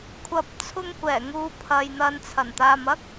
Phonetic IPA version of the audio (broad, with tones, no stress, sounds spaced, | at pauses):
kʷʰ ɐ˨ p̚ t͡sʰ ʊ˧ ŋ kʷ ɛː˨˩ ŋ uː˨ pʰ ɐ˨ j n̪ ɐ˨ n t͡sʰ ɐ˨˩ n t̪ aː˨ m ɐ˥ k̚